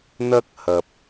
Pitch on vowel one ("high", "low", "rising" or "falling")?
high